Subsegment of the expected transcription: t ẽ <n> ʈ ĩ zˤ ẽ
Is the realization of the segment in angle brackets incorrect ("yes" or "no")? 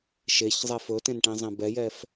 no